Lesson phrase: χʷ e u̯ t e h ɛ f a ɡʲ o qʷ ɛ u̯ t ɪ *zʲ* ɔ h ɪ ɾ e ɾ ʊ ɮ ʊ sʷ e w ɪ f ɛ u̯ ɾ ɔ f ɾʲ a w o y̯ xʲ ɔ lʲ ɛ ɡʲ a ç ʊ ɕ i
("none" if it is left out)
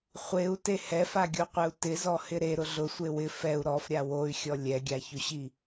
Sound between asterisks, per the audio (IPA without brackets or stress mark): z